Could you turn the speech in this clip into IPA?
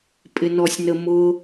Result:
pʼɪnɔsʲnəmʊ

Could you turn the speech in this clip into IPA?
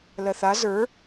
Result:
lɜθa zə˞

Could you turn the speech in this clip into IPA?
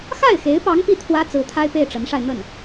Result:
xa˥˩ɪ̯xe˧˥ɪ̯pɑ˧˥ŋ pi˥t̪ʰwä˥ t͡sɹ̩˧˥t̪ʰa˥ɪ̯pe˥˩ɪ̯ ʈ͡ʂə˧˥nʂa˧ɪ̯ n̪ə˥˩n

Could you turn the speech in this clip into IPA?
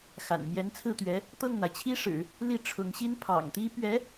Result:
xa̰˨˩nmjɛ˧˥nt͡sʰɹ̩˥˩t̪ɥɛ˧˥ | t̪ɤ˥˩ŋn̪a˩ɪ̯t͡ɕʰi˥ʂɻ̩˨˩˦ | li˥˩ʈ͡ʂʰʊ˧˥ŋɕi˥n pʰɑ̰˨˩ŋt̪i˥ pɥɛ˧˥

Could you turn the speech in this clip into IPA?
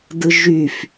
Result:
dɯʒyf

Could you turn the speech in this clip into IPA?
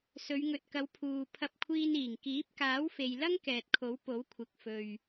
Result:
sɵ˨˧ɥŋɵ˨t̚kɐ˨˧w pʰuː˨ pʰɐ˧p̚kʷʰiː˧niː˨˩ŋ kiː˨˥p̚kaː˨˥w fe˨jlɐ˥ŋ kɛː˨t̚kʰo˨˥w po˨˥wkʷʰɪ˨k̚ fɵ˨ɥ

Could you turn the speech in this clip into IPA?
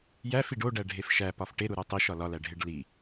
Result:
jæf iɖoɖæ ɖʱefʃæ pɒfʈe ɾuɾotˤiʃ ɒlɒlæɖʱeɖ li

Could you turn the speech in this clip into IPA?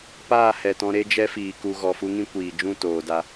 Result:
paː˦˨hɛ˨tɔ̃˧ ɾe˦d͡ʒɛ˦fiː˨ ku˨ ɣɔ˨fu˦ŋĩ˦ kʷiː˨d͡ʒũ˦˨ toː˨da˧

